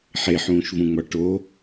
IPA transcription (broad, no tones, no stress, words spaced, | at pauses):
ħeħũːʃvũŋ͡mɒ ʈo